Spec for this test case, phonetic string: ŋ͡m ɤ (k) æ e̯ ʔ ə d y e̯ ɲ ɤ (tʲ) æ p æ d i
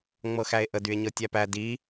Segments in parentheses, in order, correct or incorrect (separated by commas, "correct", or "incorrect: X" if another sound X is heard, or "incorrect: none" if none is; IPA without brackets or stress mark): incorrect: x, correct